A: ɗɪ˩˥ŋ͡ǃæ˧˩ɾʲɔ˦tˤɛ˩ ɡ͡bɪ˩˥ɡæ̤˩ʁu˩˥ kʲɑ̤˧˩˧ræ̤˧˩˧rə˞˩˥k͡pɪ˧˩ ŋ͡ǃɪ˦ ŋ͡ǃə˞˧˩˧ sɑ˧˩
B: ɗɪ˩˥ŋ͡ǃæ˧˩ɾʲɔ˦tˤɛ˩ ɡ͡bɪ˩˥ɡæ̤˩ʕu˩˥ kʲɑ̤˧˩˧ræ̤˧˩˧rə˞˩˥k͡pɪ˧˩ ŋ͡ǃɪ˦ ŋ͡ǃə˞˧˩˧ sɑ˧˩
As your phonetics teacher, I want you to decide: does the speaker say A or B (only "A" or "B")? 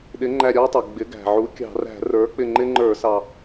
B